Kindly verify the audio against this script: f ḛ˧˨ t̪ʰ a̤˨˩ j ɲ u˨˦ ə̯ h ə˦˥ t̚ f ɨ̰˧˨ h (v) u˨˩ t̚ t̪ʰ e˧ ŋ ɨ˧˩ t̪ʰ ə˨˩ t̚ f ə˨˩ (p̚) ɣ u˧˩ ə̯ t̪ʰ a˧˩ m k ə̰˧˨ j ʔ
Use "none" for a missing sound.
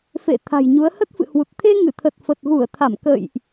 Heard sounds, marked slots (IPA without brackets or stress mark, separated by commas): w, t̚